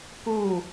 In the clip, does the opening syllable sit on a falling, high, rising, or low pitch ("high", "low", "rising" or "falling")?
falling